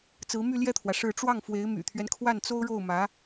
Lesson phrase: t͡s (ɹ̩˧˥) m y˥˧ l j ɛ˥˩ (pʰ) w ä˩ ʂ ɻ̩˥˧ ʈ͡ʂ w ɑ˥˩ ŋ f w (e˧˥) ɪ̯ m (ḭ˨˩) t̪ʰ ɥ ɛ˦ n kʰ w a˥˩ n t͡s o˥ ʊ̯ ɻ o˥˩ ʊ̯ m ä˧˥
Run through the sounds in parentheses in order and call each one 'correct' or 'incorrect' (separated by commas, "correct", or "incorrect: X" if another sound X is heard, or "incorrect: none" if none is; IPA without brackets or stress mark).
correct, incorrect: t̪ʰ, correct, incorrect: y̰˨˩